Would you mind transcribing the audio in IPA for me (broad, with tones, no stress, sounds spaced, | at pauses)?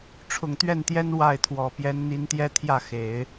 ʈ͡ʂʰ ʊ˨˩ ŋ t̪ ɥ ɛ˥˩ n t̪ j ɛ˥ n w a˥˩ ɪ̯ t̪ʰ w ɔ˨˩ p j ɛ˧˥ n n̪ i˧˥ n t̪ j ɛ˥ t̪ʰ j ä˥˩ x e˨˩˦ ɪ̯